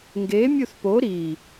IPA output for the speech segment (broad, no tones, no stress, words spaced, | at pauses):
ŋɡe mʲuθpo ɾi